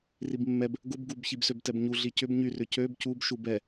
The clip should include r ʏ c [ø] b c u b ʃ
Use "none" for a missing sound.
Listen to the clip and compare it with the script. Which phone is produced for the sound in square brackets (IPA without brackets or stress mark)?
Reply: ø